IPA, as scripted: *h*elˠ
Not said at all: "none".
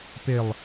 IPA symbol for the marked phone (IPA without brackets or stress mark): p